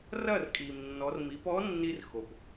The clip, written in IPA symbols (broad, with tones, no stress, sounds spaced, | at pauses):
r ɐ˥˩ r kʼ i˩ m nː ɔ˩˧ r m i˩˧ p ɔ˧˥ nː i˧ r x o˩ p